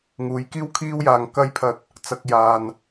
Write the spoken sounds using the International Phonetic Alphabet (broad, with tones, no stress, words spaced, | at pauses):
ŋuː˨˥jkiː˥wkʰiː˥wjaː˨ŋ kɐ˥jpʰɐ˧t̚ | t͡sɐ˨k̚ jaː˨n